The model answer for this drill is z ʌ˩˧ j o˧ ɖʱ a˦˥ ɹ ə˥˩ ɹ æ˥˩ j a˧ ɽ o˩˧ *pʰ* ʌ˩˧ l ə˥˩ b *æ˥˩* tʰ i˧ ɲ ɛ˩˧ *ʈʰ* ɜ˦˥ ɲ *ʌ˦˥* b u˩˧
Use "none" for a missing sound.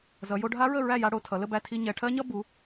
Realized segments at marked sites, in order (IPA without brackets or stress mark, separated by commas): tʰ, æ˥˩, ʈʰ, ʌ˦˥